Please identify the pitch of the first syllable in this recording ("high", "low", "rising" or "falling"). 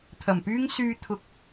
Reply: low